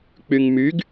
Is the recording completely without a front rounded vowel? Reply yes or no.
no